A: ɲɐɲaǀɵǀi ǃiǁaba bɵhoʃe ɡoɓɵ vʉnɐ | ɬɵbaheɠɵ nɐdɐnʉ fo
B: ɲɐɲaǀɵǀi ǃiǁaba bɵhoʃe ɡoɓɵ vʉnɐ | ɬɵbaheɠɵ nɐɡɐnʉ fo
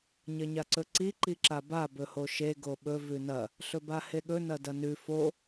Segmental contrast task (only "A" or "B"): A